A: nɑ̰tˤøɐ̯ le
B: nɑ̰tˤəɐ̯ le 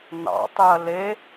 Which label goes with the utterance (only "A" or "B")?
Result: A